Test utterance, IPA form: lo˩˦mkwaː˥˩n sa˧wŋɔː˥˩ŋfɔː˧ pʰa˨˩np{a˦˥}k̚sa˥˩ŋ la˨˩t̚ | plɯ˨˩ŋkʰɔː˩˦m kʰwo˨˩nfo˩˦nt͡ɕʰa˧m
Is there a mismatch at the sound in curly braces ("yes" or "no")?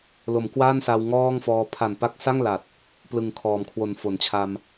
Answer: no